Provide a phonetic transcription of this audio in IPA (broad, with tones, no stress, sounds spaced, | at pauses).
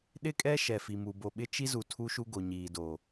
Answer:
ɗ ɪ˦ kʼ ɛ˦ ʃ ɛ˨ f i˨ m u˨ b o˨ ɓ ɪ˦ t͡ʃ i˦ z u˨ tʰ u˦ ʃ u˦ ɡ o˨ ɲ iː˨ d o˨